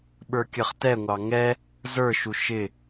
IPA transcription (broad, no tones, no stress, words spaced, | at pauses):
ɓə˞kʲʌχtɛŋʷɑ ŋɛ | zə˞ʃu ʃɪ